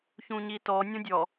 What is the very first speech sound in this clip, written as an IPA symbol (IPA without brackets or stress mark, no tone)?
ç